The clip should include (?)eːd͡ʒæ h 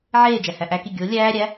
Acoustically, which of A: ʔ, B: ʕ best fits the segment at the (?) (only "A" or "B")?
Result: B